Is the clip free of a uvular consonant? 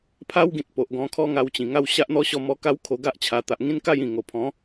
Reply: yes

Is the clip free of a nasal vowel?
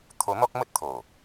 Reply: yes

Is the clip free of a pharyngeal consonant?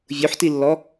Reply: no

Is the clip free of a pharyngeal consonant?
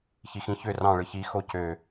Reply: yes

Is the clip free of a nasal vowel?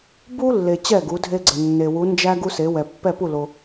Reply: yes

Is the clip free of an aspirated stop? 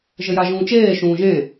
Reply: yes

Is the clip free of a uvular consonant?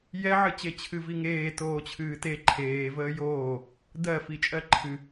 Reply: yes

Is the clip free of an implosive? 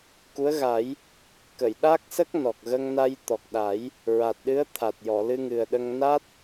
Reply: no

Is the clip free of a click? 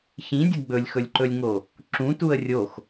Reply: no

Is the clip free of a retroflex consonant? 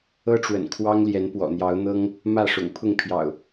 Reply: no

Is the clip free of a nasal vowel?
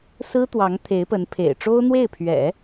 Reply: yes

